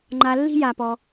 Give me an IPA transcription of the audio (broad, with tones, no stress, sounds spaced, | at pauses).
ŋ͡ǃ a˨ lː i̤˥ j a˨ p ɔ˨